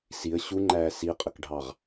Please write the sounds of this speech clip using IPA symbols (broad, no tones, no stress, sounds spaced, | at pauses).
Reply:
s i ə̯ ɕ u ŋ͡ǃ æː s i qʼ ə k ɖʱ ɑ ʁ